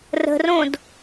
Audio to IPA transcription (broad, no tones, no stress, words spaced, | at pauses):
rə̤rõd